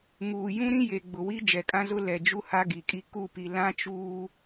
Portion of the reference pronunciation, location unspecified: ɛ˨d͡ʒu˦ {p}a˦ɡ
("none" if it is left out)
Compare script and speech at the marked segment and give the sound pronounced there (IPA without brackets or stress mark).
h